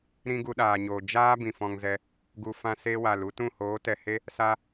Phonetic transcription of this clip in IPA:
ɾ ĩ˦ ɡ u˧ ɗ aː˨ ɲ oː˨ d͡ʒ aː˦ b ĩ˨ f ɔ̃˧ ŋ z ɛ˧ | ɡ u˨ f ã˧ s e˧ w a˨ l u˦ t ũ˦˨ h oː˨˦ t ɛ˨ h e˦ | s a˧

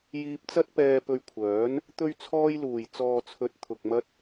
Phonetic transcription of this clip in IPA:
j iː˧ p̚ t͡s ɐ˥ t̚ p ɛː˧ p ɵ˧ ɥ kʷʰ œː˨˥ n | t̪ ɵ˥ ɥ t͡sʰ ɔː˥ j l uː˨˩ j t͡s ɔː˨ t͡sʰ ɵ˧ t̚ t̪ʰ ʊ˨ k̚ m ɐ˥ t̚

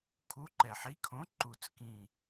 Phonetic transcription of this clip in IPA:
kʰ u˨˥ ǃ ɛ˨˩ ħ i˨˥ kʰ õ˨˥ ǃ u˨˩ t͡s k ĩ˨˩

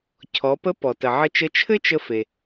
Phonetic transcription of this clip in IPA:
cʰ ɔ˩˧ p ə˧˥ p ɔ˩ t ə˩ ʕ ə˧ t͡ʃ ə˧˥ t͡ʃʰ ɘ˥ t͡ʃ ə˧ f e˩

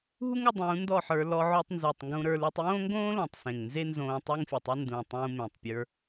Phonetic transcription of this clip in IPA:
ɦ u˦ ŋ o˧ dˤ ũː˨˦ n d ɔ˦˨ ħ ə˞˧ l ɔ˧ ʕ o˧ tˤ n z u˨ tˤ ŋ ɡ ũ˧ ɾ ə˞˧ l u˧ tˤ j õː˦ ŋ ɡ õː˦ l õ˨ tˤ s ẽ˨ ŋ n z e˦ n z õː˧ tˤ ə˦ ŋ fʲ ə˨ tˤ ə˦ n d ũ˨ tˤ ũ˧ m ẽ˨ tˤ pʲ ə˞˧

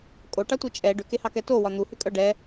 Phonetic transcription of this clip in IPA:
kʼ o ʈ ɑ tʷ i t͡ʃʼ ɛ ɖ ʏ k e h ɑ k ɛ t o w ɒ n̪ u h ʏ kʼ œ ɖ ɛ

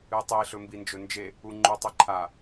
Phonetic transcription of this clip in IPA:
ɨ tˤ i ɬ ɵ m b i n d͡ʒ ɵ n d͡ʒ e | u ŋ͡ǃ ʉ tˤ i ǃʰ a

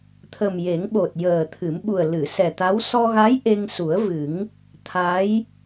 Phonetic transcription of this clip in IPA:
t̪ʰ ə˨˩ m j e˨˩˦ ŋ ɓ o˨˩ t̚ j əː˨˩ t̪ʰ ɨ˨˩˦ m ɓ u˨˩ ə̯ l ɨ˨˩˨ s ɛ˨˩ t̪ a˧˥ w s ɔ˧ ɣ a˧˥ j ʔ e˧ ŋ s u˨˩˦ ə̯ v ɨ˨˩˦ ŋ | t̪ʰ a˧˥ j

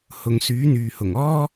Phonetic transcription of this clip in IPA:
h ʊ˧ ŋ s yː˨˥ n̪ yː˨ h ʊ˨˩ ŋ ɔː˥

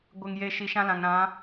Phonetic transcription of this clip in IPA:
ɡʷ ɪ˨ ŋ j e˨ ʃ i˨ ʃ ã˦ l ã˨ ŋ ɾ ã˨˦

